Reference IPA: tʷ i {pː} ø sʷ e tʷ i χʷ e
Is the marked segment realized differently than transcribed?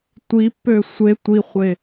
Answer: no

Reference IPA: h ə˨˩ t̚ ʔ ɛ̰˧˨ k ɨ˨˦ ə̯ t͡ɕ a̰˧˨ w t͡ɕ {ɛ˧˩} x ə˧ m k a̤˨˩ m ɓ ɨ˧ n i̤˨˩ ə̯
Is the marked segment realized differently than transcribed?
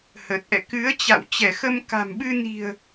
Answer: no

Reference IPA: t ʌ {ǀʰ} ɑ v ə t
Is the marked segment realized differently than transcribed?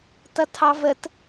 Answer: yes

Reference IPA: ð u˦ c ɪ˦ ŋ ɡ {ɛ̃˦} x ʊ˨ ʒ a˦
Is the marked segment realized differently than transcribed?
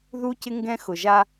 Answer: no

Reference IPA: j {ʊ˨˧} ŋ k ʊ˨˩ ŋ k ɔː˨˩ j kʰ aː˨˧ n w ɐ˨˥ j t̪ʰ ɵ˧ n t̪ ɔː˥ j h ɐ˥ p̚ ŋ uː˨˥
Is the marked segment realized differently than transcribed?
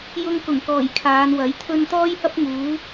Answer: yes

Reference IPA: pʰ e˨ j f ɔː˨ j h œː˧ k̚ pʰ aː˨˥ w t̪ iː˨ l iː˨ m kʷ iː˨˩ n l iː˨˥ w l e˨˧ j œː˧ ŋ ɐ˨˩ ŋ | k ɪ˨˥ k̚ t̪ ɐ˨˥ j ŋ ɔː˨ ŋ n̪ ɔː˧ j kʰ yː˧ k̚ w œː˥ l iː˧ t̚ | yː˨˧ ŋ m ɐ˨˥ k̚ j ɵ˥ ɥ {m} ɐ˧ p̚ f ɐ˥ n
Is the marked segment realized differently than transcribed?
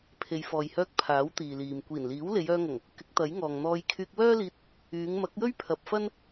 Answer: yes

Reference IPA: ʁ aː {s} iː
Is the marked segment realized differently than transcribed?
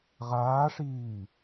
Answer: yes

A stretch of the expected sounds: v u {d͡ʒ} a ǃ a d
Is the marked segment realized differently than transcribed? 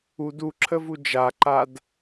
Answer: no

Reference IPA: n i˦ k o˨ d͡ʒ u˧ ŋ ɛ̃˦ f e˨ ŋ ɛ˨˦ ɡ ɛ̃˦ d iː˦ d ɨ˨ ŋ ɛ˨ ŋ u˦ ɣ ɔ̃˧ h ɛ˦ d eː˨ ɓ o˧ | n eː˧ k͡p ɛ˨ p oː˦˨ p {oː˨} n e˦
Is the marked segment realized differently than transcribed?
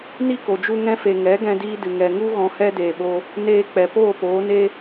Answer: yes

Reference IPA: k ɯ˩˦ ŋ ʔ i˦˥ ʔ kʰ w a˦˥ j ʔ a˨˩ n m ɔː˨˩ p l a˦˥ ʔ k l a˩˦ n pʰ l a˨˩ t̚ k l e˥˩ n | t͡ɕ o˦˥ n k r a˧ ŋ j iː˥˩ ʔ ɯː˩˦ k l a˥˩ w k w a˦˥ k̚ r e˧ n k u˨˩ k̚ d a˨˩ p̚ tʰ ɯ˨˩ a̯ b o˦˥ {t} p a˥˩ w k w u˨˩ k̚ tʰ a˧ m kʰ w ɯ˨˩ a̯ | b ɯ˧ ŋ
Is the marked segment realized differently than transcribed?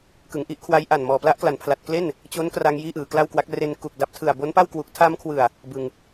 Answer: yes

